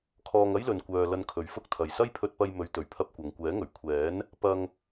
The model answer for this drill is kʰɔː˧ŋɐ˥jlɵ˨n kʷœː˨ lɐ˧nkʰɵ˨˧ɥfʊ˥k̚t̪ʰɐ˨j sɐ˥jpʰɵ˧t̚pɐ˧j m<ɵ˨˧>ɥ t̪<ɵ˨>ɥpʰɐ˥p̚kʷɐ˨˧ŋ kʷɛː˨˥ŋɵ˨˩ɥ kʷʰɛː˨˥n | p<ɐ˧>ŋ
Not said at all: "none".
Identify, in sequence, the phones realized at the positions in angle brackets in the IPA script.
ɵ˨˧, ɵ˨, ɐ˧

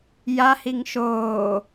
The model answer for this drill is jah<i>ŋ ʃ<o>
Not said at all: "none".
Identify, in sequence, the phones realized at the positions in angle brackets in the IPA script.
i, oː

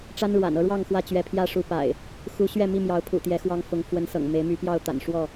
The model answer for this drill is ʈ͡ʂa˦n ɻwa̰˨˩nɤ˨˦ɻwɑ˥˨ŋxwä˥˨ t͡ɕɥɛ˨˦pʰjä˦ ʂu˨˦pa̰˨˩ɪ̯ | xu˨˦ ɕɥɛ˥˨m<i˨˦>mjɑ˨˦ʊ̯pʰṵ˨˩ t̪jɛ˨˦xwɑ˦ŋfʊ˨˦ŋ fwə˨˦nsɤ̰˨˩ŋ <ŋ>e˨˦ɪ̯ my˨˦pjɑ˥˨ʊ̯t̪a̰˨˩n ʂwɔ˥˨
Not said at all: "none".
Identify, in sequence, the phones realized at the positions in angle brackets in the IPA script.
i˥˨, m

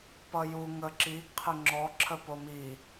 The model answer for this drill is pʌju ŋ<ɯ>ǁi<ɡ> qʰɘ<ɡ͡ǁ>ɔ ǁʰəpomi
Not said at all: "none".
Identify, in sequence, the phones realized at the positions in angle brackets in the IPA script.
ə, ɡ, ŋ͡ǁ

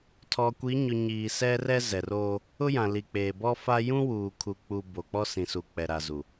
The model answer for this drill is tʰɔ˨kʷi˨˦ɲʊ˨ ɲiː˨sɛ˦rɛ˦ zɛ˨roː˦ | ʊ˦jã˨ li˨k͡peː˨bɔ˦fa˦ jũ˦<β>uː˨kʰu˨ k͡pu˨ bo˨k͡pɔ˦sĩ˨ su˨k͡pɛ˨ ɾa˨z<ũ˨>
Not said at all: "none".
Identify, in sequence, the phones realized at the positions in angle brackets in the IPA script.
w, u˨

